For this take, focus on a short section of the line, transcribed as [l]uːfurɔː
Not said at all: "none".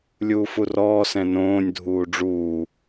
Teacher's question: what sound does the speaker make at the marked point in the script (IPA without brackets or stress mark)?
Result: lʲ